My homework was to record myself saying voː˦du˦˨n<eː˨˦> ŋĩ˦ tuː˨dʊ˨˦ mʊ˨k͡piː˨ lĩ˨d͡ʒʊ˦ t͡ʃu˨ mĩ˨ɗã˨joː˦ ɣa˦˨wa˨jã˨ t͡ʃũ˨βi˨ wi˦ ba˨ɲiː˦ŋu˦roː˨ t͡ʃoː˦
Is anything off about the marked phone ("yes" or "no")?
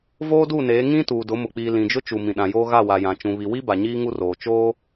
no